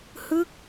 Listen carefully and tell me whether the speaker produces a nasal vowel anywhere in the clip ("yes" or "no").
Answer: no